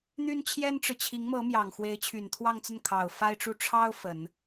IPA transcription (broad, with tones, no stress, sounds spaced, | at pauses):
n̪ y˥ n t͡ɕʰ j ɛ˥ n ʈ͡ʂ ɻ̩˨ t͡ɕʰ i˧˥ ŋ m ɤ˧˥ m j ɑ˨˩ ŋ x w e˧˥ ɪ̯ t͡ɕʰ y˨˩ n t̪ʰ w ɑ˥˧ ŋ t͡s ə˥˩ n kʰ ɑ˨˩ ʊ̯ f a˥ ɪ̯ ʈ͡ʂ u˥˩ ʈ͡ʂʰ ɑ˥ ʊ̯ f ə˨˩˦ n